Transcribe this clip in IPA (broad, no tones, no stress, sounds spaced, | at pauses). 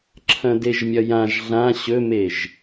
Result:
ǁʰ ɐ̃ d e ʒ mʲ ɐ j ã ʒ ɮ ã ɕ ɵ m e ʒ